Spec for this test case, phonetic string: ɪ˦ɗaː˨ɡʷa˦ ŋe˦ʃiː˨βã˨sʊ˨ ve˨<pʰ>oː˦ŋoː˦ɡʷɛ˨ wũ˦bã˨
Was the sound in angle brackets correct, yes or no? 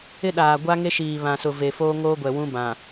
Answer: no